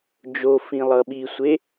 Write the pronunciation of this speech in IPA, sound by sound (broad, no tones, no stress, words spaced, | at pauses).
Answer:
d͡ʒo fĩlˠʌɓisʷe